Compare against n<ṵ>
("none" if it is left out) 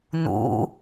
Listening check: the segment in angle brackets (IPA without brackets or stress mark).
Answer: ṵ